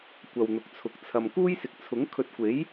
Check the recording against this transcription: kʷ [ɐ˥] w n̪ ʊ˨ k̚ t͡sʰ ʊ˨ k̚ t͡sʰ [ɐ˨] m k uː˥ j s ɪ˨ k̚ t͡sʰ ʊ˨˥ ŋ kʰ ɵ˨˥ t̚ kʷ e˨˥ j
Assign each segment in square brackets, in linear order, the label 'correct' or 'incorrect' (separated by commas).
incorrect, correct